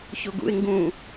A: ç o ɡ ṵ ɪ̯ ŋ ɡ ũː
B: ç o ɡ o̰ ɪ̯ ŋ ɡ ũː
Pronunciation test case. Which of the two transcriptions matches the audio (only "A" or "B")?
A